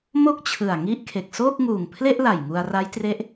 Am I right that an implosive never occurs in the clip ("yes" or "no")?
yes